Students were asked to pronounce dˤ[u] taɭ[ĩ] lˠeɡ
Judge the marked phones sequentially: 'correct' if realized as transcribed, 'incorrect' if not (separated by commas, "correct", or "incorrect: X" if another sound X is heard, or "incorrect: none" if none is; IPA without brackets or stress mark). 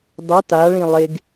correct, correct